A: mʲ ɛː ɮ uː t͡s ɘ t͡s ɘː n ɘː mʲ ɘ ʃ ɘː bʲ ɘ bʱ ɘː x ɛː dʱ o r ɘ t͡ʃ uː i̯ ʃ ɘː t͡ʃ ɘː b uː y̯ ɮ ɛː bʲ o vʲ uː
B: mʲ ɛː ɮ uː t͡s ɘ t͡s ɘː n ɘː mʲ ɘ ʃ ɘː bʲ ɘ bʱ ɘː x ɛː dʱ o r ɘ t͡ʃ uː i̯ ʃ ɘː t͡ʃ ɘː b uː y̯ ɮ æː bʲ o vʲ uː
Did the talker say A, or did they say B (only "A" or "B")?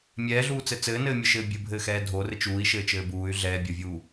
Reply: A